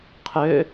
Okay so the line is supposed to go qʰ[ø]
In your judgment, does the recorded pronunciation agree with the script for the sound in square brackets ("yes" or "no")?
yes